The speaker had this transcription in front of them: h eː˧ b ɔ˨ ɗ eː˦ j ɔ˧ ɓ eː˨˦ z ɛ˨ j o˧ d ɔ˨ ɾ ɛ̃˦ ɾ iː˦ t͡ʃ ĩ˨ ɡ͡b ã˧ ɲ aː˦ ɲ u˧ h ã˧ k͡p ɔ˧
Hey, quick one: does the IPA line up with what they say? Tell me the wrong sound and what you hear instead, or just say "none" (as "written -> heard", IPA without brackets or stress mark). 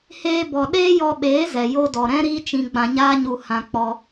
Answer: ĩ˨ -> ĩ˧